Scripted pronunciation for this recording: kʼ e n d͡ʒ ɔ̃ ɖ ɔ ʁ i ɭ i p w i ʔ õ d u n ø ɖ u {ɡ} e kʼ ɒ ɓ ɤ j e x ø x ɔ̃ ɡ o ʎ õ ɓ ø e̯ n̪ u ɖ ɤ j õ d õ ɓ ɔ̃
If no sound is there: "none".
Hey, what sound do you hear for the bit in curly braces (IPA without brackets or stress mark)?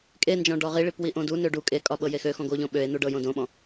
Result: kʼ